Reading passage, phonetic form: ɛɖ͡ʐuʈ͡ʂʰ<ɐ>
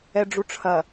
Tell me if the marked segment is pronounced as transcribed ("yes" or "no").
yes